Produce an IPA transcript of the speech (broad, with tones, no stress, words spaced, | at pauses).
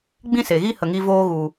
ɡ͡bĩ˦se˨ɣi˦ hə˧ŋi˦ voː˧ɣu˨